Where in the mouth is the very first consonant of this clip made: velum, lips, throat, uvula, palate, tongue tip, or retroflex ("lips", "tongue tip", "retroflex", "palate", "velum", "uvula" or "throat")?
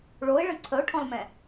retroflex